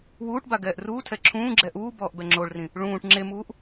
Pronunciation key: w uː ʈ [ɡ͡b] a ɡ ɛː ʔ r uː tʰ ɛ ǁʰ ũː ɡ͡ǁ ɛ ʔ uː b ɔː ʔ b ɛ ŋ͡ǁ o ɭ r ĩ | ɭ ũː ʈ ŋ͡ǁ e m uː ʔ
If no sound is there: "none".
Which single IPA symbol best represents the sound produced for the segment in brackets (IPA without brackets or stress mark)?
b